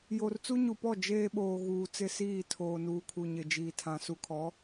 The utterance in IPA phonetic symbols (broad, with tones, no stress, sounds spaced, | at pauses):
j o˨ r t͡s u˦ ɲ u˨ p ɔ˦˨ d͡ʒ eː˦ ɓ oː˨ ɣ uː˨ t͡s ɪ˦˨ s iː˦˨ tʰ oː˨ n uː˨ kʰ u˨ ɲ ɪ˨ d͡ʒ iː˨ tʰ ã˨ s u˨ kʰ ɔ˨˦